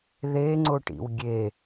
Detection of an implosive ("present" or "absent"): absent